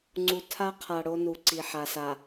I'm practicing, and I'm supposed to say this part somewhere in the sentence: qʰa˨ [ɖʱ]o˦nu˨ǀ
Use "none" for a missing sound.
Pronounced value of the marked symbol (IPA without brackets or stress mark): ɽ